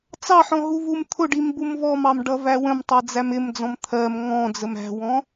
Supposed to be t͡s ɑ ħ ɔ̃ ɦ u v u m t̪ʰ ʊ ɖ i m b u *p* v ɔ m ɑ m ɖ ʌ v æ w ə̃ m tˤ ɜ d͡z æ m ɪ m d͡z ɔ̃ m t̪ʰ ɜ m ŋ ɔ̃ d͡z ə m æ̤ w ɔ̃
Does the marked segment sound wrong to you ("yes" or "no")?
yes